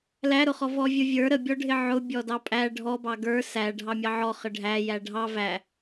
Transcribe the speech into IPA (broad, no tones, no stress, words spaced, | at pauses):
læɾʊχɔ vɔvʲʊvʲə˞ ɾəbʲɔɖʱɪ ʕʊ bʲɔdɑpʼæ ɖʱɔbɑ ɡə˞ sæ ɖʱɑmʲɑʕɔ χəɖʱæjæ ɖʱɑ væ